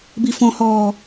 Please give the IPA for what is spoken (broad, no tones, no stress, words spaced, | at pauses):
bifɔ̃hɔː